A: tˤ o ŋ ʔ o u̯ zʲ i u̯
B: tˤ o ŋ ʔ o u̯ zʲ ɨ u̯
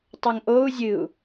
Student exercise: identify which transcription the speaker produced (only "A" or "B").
B